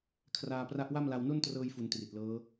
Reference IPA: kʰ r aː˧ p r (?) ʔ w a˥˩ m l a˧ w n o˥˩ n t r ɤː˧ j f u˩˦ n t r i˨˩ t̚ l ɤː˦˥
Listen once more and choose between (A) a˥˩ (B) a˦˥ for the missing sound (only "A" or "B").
B